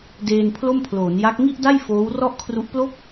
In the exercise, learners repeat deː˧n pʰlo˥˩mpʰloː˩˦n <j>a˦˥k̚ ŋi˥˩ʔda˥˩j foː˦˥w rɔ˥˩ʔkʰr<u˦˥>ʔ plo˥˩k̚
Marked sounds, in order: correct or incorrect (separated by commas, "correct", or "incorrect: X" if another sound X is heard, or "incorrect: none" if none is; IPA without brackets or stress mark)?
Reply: correct, correct